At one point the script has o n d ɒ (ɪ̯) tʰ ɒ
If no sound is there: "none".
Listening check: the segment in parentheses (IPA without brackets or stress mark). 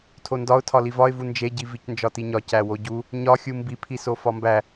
ʊ̯